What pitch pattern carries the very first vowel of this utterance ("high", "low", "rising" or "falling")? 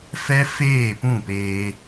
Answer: high